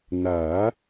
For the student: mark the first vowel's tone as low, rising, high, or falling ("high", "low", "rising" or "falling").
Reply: rising